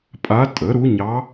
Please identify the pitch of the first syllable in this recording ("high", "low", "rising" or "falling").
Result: rising